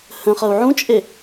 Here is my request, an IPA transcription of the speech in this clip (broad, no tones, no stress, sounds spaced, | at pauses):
h ə̃ χ ʌ u̯ ʕ ũ t͡ʃʼ e